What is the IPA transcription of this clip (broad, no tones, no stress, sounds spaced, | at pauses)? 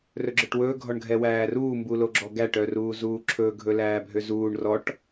r ɵ ɡ͡ǁ œ ʈ w ɵː ɡʱ ɔ ɳ ɡʱ ɛ w æː r uː m b u l o ɡ͡ǁ ɔ ɡ æ ʈ œ r uː z uː ǁʰ ɵː ɡʱ ɵ l æː bʱ ø z uː ɳ r ɔ ʈ